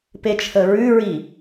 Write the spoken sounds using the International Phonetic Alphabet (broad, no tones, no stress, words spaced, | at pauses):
pet͡ʃʰəɹʉɹi